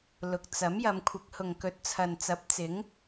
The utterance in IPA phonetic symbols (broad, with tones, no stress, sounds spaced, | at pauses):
l ʊ˨ k̚ t͡s ɐ˨˥ m j ɐ˨˧ m kʷʰ ɪ˨˥ k̚ h ʊ˨ ŋ k ɵ˨˥ t̚ t͡sʰ ɐ˨ n t͡s ɐ˨˥ p̚ t͡s ɪ˨˥ ŋ